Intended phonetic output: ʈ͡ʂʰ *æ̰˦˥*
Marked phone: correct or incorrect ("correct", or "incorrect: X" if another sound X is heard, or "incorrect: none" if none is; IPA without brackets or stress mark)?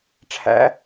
correct